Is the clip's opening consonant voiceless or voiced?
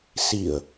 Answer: voiceless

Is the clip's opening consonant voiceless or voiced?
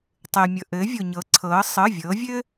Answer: voiceless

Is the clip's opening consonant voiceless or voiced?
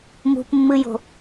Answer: voiced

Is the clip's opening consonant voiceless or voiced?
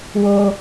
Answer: voiced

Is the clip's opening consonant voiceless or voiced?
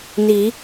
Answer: voiced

